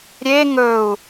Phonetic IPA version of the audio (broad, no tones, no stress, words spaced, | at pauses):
ɾʲe ŋɵu̯